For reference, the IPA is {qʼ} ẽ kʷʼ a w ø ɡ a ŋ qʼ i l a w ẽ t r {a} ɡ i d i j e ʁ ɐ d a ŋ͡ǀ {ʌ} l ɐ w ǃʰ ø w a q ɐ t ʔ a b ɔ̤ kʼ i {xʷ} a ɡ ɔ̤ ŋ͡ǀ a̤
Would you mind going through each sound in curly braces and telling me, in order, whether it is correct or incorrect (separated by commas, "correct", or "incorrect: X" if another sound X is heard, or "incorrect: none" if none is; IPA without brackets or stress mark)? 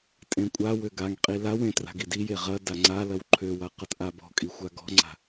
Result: incorrect: tʼ, incorrect: a̤, incorrect: a, correct